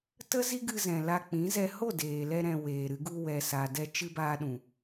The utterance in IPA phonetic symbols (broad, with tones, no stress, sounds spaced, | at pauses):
t ə˦ z i˦ ɡ ɨ˧ z ɛ̃˨ l a˧ k͡p ĩ˨˦ z ɛ˧ h o˦˨ d eː˨ l ɛ˧ ɾ ɛ̃˨ w eː˨ ɾ ɨ˧ ɡ u˧ w ɛ˨ s a˨ d ɛ˧ t͡ʃ ɨ˧ b aː˧ ɗ ũ˨